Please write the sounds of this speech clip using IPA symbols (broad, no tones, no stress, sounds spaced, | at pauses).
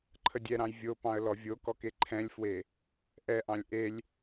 ǃʰ ə dʲ ɛ ɾ ɑ̃ j vʲ o p ɑ̃ ə̯ l ɔ vʲ o k ɔ k e ǃʰ ɛ̃ lʲ f w e | ʔ ɛ ʔ ɑ̃ lʲ ʔ e lʲ